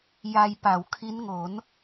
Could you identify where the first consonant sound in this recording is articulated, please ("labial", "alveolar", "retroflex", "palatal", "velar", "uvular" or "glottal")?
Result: palatal